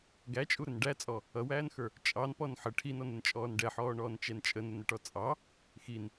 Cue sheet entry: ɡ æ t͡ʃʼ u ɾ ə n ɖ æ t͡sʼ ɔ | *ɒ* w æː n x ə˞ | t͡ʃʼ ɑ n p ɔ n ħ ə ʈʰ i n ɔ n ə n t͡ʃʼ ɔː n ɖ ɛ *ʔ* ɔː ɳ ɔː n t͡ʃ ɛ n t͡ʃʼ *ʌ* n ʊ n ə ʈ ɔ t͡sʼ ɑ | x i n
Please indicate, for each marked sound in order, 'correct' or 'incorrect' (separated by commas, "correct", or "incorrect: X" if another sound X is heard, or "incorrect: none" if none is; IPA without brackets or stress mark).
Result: incorrect: ʌ, incorrect: ħ, incorrect: ə